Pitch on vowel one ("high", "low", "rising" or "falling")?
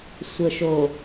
low